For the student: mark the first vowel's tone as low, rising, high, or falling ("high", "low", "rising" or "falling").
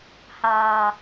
low